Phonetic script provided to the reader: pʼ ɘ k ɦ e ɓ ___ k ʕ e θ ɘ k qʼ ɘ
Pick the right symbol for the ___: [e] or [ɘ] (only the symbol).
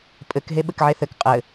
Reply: ɘ